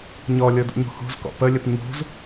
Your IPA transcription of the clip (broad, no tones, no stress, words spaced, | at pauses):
ɲɔlʲɤdṵɲo̤ ho̤zkɔ̰ pəlʲəp ɲo̤z